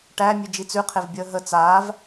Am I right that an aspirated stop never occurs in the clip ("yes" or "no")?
no